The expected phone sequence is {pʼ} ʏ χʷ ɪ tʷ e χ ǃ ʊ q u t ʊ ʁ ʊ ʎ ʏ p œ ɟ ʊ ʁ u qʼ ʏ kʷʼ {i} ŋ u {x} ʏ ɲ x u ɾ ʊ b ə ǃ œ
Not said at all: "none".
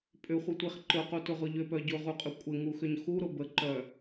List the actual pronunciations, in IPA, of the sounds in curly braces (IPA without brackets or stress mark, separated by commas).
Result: pʼ, ɪ, x